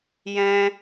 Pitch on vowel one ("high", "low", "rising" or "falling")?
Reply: high